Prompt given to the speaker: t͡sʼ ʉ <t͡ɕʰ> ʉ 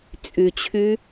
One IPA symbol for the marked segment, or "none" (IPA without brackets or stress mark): t͡ɕʰ